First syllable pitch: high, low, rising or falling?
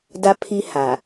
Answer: high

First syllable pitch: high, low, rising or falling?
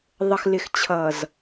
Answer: low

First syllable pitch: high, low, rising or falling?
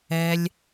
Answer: low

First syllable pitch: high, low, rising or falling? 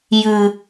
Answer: low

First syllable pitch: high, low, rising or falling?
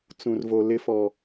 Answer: low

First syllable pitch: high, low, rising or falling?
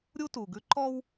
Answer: high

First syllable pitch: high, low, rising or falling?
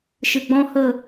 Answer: low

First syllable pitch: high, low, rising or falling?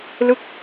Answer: falling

